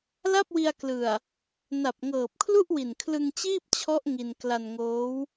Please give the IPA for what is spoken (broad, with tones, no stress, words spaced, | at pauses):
la˥˩p̚wi˧a̯klɯ˨˩a̯ | na˨˩p̚ŋɤː˨˩p̚kʰlu˥˩ʔwi˨˩n kʰlɯ˧ŋt͡ɕiː˥˩p̚t͡ɕʰɔ˦˥ʔ ŋi˧n kla˧nŋoː˦˥w